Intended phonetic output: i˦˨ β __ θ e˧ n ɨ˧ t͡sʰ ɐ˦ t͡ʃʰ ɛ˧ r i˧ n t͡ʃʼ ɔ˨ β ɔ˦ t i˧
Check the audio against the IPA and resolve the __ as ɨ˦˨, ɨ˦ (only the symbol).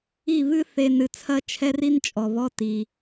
ɨ˦